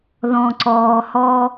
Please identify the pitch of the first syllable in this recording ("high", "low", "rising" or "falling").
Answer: low